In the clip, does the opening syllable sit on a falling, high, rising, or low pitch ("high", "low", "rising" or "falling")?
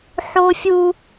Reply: high